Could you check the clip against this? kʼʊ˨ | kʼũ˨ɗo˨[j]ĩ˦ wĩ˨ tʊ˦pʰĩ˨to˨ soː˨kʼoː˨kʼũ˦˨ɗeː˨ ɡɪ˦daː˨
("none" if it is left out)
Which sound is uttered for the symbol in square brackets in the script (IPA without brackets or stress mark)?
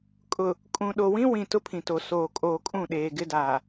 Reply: w